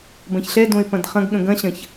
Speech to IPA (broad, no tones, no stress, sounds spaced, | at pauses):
b ɐ̃ ç ɬ ɛ d õ ɪ̯ p ɐ̃ d χ ɐ̃ ɡ ɠ ə̃ ɡ ɐ̃ ɕ ɐ̃ ç